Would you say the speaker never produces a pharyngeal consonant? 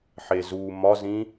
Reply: no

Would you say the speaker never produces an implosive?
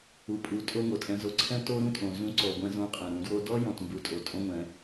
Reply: yes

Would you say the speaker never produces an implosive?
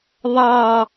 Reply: yes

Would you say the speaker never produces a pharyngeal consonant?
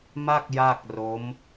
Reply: yes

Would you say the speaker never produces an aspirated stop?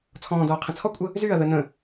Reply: no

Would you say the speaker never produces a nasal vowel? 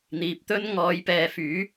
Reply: yes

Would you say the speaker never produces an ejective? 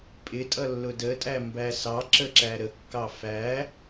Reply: no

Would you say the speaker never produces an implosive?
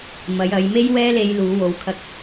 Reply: yes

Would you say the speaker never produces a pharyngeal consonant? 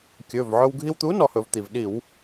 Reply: no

